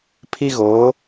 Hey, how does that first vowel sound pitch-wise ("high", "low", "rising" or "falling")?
high